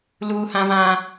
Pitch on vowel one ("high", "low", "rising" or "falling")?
high